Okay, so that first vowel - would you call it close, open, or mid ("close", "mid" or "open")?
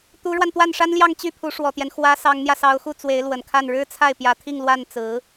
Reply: close